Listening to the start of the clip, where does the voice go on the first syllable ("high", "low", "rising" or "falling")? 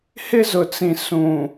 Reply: high